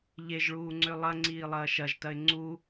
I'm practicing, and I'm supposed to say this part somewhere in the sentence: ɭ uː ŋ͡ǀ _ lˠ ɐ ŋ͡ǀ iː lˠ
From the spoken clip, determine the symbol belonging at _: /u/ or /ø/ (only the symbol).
ø